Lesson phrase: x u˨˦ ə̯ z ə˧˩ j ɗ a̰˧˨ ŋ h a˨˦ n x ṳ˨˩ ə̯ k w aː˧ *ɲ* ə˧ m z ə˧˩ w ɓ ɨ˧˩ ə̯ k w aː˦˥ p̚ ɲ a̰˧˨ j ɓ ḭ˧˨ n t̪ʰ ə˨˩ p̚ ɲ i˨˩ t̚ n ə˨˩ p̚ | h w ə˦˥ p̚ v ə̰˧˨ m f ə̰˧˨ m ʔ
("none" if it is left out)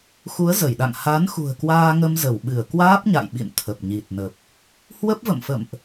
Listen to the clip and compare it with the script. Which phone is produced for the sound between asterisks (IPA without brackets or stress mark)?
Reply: ŋ